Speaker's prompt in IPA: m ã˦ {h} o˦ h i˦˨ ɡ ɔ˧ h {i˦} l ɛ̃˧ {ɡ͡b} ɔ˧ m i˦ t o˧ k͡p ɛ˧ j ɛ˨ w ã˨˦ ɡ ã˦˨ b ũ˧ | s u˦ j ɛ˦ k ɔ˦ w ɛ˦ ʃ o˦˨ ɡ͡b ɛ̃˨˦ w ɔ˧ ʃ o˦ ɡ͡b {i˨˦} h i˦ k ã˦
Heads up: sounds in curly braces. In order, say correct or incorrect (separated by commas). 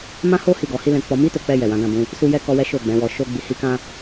correct, correct, incorrect, incorrect